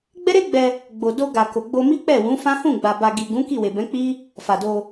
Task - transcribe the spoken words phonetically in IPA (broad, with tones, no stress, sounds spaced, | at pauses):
ɡ͡b ɛ˦ ɾ e˦ ɡ͡b ɛ˧ | ɡ͡b o˨ d o˧ ɡ a˨ k o˨ ɡ͡b o˧ m i˦ k͡p ɛ˦˨ w ũ˨˦ f ã˦ h ũ˦˨ ɡ͡b a˨ b a˨ ɡ i˨ ɡ ũ˨˦ k i˦˨ w e˨ b ɛ̃˨˦ k͡p i˦ | f a˨ d o˧